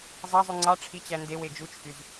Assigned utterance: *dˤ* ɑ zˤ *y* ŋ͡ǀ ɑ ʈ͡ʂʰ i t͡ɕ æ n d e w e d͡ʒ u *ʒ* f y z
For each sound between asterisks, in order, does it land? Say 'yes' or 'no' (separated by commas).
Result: no, yes, no